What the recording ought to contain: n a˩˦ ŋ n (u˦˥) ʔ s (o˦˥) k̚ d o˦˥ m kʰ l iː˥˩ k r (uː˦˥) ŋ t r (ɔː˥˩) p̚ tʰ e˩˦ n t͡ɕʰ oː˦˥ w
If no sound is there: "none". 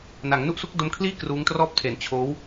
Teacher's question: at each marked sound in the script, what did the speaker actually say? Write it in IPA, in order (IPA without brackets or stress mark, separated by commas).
u˦˥, u˦˥, uː˦˥, ɔː˥˩